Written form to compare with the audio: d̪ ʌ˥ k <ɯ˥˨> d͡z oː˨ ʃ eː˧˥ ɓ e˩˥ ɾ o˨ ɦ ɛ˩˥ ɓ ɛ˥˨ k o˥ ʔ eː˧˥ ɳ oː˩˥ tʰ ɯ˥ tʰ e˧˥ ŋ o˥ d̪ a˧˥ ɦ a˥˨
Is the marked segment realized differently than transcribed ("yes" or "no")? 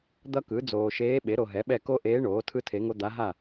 yes